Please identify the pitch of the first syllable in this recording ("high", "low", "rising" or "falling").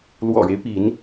low